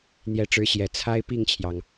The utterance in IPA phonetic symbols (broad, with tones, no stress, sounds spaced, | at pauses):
n̪ j ɛ˧˥ ʈ͡ʂ ɻ̩˧˥ ɕ j ɛ˨˩ t͡sʰ a˥ ɪ̯ p i˥˩ ŋ t͡ɕʰ j ɑ˩ ŋ